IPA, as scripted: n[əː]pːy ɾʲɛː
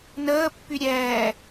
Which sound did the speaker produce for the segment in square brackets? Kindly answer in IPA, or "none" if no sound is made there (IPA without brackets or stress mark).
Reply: əː